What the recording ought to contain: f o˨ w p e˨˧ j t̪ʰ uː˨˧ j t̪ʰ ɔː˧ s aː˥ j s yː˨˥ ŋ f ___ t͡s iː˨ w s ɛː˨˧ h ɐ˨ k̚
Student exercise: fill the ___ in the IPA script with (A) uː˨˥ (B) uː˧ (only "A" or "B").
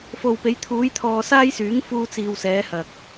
B